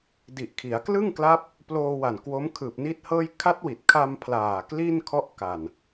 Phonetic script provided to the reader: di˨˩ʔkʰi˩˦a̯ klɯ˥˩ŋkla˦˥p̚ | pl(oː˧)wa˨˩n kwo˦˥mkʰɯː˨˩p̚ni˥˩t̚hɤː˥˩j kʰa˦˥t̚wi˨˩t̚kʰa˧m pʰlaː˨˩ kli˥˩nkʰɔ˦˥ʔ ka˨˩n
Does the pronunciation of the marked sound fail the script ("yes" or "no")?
no